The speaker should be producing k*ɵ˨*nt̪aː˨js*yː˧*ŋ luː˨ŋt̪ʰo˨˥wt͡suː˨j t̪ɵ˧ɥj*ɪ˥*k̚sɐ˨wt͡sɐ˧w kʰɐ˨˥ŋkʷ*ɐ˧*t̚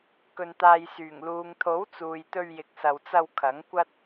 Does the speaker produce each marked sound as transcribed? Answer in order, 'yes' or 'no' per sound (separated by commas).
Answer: yes, no, no, no